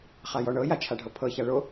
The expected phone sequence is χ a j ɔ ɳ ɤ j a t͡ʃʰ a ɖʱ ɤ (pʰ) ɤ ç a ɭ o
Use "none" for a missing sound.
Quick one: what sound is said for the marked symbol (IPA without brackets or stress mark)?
pʰ